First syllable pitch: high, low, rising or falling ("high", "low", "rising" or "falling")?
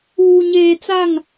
low